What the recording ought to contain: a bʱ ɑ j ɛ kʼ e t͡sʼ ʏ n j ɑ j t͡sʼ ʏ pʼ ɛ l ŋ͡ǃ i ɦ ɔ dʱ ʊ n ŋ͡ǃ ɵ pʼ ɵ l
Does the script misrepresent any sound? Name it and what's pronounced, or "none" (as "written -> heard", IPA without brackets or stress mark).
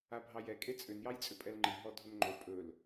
none